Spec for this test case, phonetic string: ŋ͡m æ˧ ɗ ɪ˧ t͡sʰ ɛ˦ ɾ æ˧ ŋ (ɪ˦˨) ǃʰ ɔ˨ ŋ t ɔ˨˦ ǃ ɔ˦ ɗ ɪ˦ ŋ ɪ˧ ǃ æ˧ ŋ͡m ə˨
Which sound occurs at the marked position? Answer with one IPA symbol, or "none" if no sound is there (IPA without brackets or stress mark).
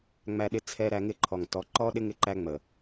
ɪ˦˨